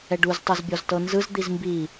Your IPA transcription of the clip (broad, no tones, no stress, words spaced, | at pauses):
ɛɖuz tˤɤzbʲɔztɤnzɯz d̪izmbi